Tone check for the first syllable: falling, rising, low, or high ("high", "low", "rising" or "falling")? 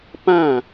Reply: falling